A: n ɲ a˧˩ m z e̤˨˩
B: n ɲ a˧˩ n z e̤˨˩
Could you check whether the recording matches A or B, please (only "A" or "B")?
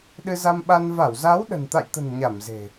A